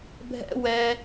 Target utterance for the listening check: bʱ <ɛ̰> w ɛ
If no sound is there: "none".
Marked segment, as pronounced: ɛ̰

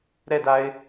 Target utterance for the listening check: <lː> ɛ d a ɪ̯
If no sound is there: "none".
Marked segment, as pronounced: ɾ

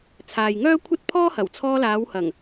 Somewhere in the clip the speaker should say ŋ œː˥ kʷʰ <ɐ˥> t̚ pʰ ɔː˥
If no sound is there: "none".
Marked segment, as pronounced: ɐ˥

